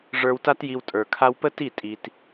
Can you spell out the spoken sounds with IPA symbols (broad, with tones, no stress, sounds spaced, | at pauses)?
ʐ ə˞˧ w t a˦ t j i˧ w tʼ ə˞˨ kʰ a˧ w p ə˦ t i˦˨ tʼ i˧ t